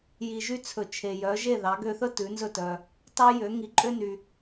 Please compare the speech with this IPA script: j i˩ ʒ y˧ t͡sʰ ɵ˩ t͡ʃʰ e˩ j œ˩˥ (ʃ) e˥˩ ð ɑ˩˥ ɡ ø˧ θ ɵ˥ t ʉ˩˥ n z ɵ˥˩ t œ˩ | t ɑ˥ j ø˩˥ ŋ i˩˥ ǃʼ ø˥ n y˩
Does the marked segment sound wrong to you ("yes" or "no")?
yes